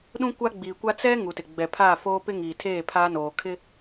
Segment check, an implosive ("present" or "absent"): present